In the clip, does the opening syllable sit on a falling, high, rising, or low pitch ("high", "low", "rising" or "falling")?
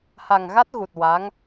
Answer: low